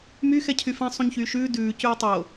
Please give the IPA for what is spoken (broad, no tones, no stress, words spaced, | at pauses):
myxɛ cʰyfɛ̃ sˤũɲçyːʃʉː dʉː cʉːtˤo